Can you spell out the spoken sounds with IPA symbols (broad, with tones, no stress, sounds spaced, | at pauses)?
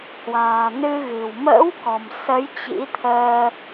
h w a̤ː˨˩ n ɨ˧ ɣ ɨ̤˨˩ w m ə̰ː˧˥ w k ɔ̤˨˩ m s ə˨˦ j t͡ɕ ḭ˧˥ t̪ʰ əː˧